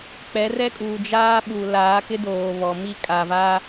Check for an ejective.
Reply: present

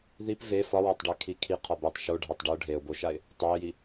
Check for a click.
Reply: absent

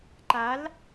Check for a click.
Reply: present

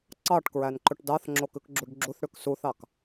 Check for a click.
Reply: present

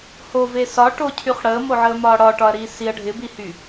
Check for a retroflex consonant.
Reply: present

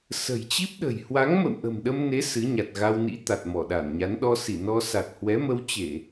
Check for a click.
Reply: absent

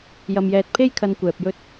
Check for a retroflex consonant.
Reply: absent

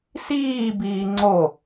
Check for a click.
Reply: present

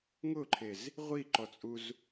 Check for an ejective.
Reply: present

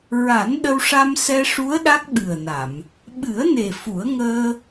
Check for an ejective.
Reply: absent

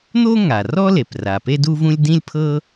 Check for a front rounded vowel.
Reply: absent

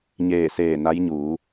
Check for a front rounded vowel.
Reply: absent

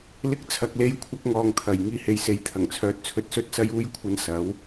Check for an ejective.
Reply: absent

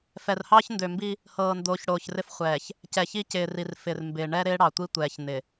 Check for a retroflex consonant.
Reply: present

